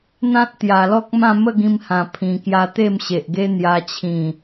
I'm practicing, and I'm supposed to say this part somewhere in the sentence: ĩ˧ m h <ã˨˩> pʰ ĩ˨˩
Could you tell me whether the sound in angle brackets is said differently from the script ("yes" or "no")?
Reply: no